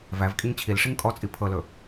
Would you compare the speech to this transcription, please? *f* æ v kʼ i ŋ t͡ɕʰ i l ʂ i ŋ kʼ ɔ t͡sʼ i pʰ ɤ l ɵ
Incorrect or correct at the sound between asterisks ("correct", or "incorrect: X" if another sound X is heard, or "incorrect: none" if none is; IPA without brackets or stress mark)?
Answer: incorrect: v